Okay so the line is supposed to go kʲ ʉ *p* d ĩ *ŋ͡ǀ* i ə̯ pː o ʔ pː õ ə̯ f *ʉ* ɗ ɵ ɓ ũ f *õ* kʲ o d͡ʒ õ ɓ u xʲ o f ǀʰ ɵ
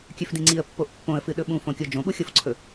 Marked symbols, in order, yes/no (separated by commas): no, yes, no, yes